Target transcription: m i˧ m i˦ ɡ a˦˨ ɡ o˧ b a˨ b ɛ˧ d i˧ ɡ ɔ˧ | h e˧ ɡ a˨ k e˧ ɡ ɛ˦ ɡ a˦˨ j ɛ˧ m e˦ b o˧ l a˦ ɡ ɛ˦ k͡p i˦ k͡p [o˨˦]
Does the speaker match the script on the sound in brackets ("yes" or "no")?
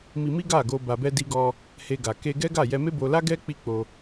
no